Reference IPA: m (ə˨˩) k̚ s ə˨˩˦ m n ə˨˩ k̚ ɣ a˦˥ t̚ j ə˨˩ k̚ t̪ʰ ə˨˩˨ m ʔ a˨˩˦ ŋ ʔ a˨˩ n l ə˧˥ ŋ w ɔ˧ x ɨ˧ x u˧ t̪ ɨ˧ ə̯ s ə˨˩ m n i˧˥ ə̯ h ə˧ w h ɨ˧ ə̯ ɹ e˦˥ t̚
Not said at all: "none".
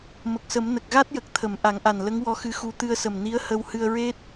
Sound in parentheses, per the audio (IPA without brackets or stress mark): ə˨˩